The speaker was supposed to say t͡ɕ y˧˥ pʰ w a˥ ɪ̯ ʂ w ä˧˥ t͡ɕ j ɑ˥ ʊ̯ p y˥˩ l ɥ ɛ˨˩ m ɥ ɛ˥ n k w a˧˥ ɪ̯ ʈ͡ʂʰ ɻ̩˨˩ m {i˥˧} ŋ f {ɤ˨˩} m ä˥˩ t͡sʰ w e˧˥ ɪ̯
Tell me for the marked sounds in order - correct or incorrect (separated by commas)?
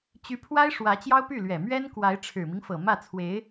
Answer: incorrect, correct